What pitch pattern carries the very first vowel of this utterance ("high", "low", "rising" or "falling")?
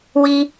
high